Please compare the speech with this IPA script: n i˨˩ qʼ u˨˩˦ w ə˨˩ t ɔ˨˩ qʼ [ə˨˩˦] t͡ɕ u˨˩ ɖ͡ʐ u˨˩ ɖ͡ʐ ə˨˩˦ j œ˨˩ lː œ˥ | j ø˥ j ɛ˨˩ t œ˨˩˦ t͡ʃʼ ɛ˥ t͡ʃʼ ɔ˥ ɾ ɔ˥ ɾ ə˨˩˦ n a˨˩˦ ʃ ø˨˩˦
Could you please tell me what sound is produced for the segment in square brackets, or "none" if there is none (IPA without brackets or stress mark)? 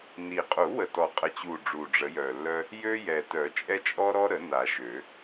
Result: ə˨˩